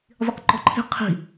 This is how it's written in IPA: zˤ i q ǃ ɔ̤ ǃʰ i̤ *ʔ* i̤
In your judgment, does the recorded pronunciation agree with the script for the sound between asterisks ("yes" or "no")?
no